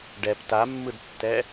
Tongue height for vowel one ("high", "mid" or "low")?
mid